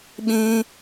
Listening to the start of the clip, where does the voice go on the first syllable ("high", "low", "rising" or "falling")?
high